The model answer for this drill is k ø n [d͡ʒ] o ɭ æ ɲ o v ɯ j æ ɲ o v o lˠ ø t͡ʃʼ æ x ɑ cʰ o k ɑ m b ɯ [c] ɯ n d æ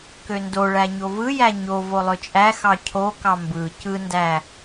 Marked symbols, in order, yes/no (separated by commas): no, yes